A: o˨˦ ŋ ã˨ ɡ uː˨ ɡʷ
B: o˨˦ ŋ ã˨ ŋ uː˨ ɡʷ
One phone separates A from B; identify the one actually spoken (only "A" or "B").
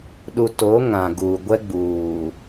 A